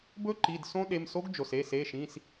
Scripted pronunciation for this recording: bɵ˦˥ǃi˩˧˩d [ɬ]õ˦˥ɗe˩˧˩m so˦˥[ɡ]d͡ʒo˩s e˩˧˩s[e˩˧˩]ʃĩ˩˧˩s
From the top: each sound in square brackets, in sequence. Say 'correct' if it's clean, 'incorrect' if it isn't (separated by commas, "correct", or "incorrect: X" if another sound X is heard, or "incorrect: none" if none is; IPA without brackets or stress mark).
incorrect: s, correct, correct